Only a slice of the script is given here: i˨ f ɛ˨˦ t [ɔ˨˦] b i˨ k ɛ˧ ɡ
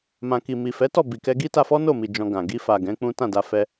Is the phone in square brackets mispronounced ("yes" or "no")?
yes